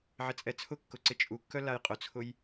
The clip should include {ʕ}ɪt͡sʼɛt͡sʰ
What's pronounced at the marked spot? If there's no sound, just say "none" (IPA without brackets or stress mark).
ʕ